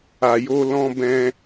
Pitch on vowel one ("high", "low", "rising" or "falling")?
low